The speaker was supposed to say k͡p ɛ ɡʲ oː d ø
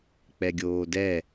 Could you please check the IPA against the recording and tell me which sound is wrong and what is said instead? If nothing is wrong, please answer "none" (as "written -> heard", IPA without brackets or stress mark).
ø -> ɛ